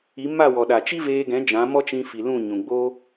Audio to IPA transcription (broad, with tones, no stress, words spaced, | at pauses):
i˨˦ma˦˨wɔ˨ɗa˨ t͡ʃi˦veː˧ɡɛ̃˨˦ d͡ʒã˨˦mɔ˦t͡ʃĩ˧ fi˨lũ˦˨ ɲũ˨ɡ͡bo˦